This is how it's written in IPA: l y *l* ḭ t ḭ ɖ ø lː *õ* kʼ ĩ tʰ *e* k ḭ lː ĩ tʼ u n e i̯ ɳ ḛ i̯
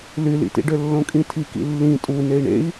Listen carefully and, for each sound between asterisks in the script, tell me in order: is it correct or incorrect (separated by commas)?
correct, correct, incorrect